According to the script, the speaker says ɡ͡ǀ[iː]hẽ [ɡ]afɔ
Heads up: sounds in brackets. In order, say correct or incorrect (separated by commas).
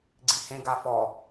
incorrect, correct